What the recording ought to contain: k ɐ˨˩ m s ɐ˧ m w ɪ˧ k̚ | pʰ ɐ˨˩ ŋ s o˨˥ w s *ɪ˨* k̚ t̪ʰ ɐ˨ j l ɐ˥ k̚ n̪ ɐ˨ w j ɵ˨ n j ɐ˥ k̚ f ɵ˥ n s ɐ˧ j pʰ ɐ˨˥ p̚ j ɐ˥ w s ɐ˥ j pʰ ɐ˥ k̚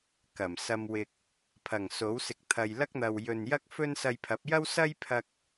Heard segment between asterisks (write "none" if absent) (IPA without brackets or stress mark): ɪ˨